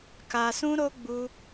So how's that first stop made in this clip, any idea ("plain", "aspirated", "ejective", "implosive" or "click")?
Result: plain